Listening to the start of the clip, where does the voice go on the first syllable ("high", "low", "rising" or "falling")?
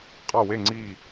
falling